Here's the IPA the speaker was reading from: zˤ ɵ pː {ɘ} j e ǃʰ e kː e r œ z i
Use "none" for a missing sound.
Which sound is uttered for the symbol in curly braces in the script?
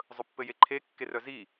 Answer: ɘ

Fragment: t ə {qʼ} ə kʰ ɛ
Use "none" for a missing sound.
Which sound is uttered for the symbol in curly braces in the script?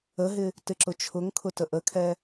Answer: ʔ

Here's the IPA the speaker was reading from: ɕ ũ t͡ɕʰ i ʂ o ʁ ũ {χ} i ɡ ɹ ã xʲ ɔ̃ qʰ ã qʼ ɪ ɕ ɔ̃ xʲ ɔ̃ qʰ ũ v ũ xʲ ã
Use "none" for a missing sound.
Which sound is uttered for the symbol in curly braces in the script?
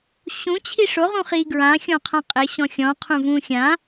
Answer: χ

